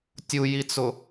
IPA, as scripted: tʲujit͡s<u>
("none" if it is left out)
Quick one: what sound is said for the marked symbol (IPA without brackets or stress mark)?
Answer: ʊ